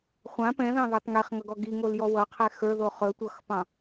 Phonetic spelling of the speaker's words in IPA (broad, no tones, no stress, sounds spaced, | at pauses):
χʷ ã p ɛ̃ ð ɑ̃ ð ə˞ tˤ ŋ e χ ŋ ʌ ɡ ɔ ɡ i ŋ o l j ɔ w ʌ qʰ ɛ x ə˞ ð o χ ɵ tʷ ʌ x p ɑ̃